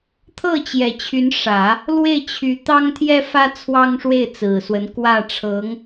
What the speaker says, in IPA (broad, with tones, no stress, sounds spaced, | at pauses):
t̪ʰ ɤ˥˩ t͡ɕ j ɛ˨˩ t͡ɕʰ y˧˥ n ʂ ä˨˩˦ | l w e˥˩ ɪ̯ t͡ɕʰ y˧˥ t̪ ɑ˥ ŋ t̪ʰ j ɛ˥ f ä˥ t͡sʰ w ɑ˥ ŋ ʂ w e˥˩ ɪ̯ t͡s ɹ̩˨˩ s w ə˧˥ n k w ä˥˩ ʈ͡ʂʰ ɤ˧˥ ŋ